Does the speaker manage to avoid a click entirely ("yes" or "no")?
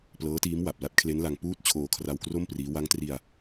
yes